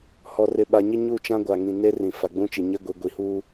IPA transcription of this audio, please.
h ɔ˨ r ɪ˨ ɓ a˨ ɲ ɪ˦ ɲ u˦˨ t͡ʃ ã˦ ɡʷ a˨ ŋ ĩ˨ n e˦ r ĩ˨ f a˨ ɡ͡b ũ˦ t͡ʃ i˨ ɲ e˦ ɡʷ i˨ ɡʷ i˨ h uː˦

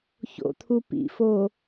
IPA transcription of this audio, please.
ç o̰ t̪ʰ u p ḭ f o

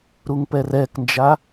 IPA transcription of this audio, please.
ɾ u ŋ p ɛ r ɛ k n d͡ʒ a

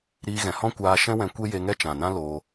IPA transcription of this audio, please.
ɾ iː˧ ɣ ɛ̃˨ h ɔ̃˦ kʷ aː˧ ʃ ɛ̃˦ w ɛ̃˧ kʷ e˦ j e˧ ŋ ɛ˦ t͡ʃ ã˨ n ã˦ l oː˧

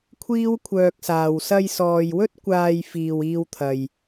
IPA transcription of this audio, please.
kʷʰ iː˥ w kʷʰ œː˧ k̚ s aː˨ w s ɐ˧ j s ɔː˨ j w ɵ˥ t̚ kʷ aː˧ j f iː˨ w iː˧ w t̪ʰ ɐ˨ j

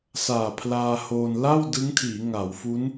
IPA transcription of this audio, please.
s aː˨˩ pʰ l aː˧ h oː˧ n l a˥˩ w d ɯ˦˥ ŋ tʰ iː˩˦ ŋ a˩˦ w f u˦˥ n

